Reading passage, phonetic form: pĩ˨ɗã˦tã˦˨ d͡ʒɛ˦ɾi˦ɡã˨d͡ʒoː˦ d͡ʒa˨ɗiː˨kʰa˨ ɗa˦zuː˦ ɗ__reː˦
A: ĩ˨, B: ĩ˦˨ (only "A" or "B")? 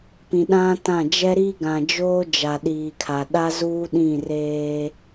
B